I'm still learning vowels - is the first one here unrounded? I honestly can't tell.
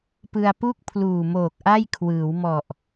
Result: yes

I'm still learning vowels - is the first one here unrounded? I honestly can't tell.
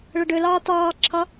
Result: yes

